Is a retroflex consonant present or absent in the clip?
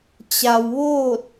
absent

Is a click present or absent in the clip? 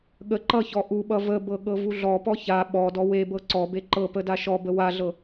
present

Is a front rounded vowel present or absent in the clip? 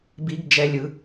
absent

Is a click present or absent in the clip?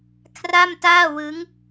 absent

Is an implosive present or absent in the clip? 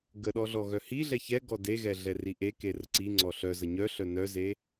present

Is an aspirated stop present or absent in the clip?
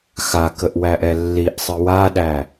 absent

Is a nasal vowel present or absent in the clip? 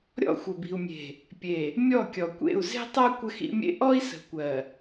absent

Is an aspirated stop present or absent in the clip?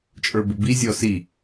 absent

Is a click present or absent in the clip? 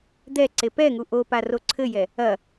present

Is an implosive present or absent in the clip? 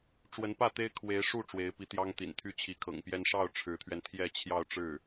absent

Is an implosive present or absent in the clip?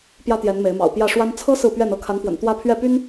absent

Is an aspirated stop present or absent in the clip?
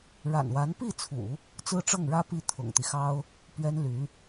present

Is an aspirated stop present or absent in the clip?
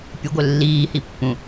absent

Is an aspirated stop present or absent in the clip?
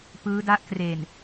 absent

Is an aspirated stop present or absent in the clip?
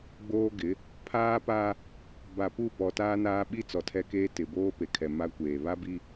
present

